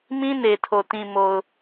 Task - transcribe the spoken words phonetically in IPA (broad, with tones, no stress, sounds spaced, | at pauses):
m ĩ˦ n e˨ tʰ o˨ t ĩ˨ m o˨ ʊ̯